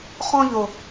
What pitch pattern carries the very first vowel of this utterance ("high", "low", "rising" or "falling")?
high